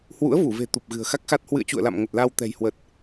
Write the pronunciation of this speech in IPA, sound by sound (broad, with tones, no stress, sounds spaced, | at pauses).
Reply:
h w ṵ˧˥ ə̯ v u˧˩ v e̤˨˩ t̪ u˨˩ p̚ ɣ ɨ̤˨˩ ə̯ x a˦˥ k̚ x a˦˥ t̚ h w ɨ̰˧˨ ə̯ t͡ɕ ṵ˧˨ ə̯ l a̰˧˨ m ŋ ə˨˩ t̚ l a˧ w t̪ ɛ̤˨˩ j h w ə˨˩ t̚